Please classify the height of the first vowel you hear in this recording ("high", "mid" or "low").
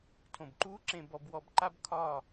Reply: mid